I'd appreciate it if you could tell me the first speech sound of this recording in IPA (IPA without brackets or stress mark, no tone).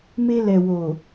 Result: m